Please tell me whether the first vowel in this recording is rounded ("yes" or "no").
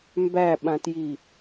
no